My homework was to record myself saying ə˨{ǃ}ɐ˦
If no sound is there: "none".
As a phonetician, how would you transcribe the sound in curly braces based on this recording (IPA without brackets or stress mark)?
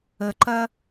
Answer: ǃ